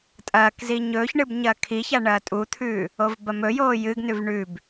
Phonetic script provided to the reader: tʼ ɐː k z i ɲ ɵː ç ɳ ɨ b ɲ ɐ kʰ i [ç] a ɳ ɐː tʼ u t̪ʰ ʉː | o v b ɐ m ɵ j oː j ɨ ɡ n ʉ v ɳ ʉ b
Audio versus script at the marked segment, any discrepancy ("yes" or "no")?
no